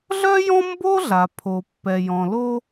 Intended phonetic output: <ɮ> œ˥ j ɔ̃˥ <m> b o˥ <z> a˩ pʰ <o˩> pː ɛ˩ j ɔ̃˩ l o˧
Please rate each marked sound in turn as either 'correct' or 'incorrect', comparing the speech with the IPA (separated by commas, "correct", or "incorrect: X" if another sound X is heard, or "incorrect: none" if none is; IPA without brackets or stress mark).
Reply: correct, correct, incorrect: ɮ, correct